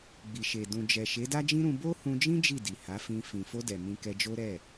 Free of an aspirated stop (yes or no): yes